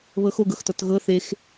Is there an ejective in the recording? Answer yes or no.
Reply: no